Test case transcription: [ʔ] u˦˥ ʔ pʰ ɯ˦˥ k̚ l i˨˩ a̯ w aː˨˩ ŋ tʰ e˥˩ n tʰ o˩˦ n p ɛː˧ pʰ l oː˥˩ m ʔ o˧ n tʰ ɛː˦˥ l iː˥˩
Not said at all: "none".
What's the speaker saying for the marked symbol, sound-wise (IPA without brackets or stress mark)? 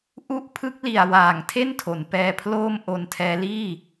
ʔ